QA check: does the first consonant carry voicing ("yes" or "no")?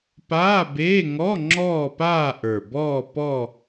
no